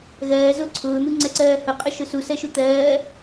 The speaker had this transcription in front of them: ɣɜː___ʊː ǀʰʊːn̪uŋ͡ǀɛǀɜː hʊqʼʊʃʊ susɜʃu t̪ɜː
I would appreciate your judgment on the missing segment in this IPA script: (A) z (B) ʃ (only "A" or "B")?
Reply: A